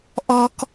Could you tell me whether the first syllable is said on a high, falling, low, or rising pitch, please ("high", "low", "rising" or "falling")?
high